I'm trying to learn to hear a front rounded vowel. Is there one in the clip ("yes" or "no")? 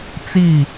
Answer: no